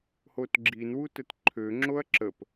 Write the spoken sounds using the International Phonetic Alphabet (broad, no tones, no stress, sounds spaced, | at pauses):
h o t ɡ͡ǁ i n w u t ə t ǃʰ ø ŋ͡ǁ o ɐ̯ ǁ ə p